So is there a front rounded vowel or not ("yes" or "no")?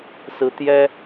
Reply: no